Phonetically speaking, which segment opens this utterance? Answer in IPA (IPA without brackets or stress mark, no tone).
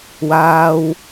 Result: w